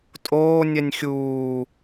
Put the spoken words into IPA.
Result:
tʼoː nʲɛnʲxʲuː

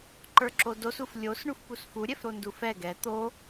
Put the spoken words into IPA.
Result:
ǃə˞ǁodosuf lʲos ɳufpusfu ɾʲɛfɾondufɛ ɡɛ t̪o

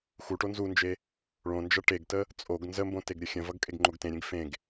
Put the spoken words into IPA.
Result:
xuʈo nzund͡ʒe | ɭõnd͡ʒʌ ʈeɡtə | t͡sʼoɡ nzəmbõ teɡɾʲəxʲə̃vʌɡ kʼeɡŋ͡ǃoɡtẽɾʲẽɡ fẽɡ

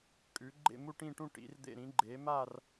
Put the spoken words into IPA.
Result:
kʼʉ˨˥ ɡ͡ǃḛ˥˧mu˥˧ʈĩ˥˧ʈũ˥˧ ʈḭ˨˥rd̪ḛ˥˧ ɾĩ˨˥ɡ͡ǃe˨˥ ma˥˧r

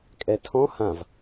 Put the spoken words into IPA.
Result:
kʼɛtʰɔ̃ hãv

